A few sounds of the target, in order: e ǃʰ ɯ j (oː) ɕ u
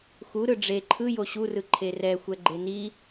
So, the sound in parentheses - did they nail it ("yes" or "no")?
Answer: no